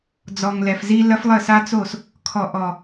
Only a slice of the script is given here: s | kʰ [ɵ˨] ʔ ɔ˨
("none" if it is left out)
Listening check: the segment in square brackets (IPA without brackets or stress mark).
ɔ˨